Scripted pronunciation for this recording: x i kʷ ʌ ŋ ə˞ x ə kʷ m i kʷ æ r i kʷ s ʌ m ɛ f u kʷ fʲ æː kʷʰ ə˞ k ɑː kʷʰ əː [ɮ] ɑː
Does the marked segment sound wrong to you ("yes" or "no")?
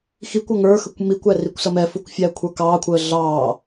no